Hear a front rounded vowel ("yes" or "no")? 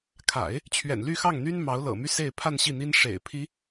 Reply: yes